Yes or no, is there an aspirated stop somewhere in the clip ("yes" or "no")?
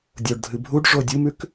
no